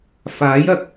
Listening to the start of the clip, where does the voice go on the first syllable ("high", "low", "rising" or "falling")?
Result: rising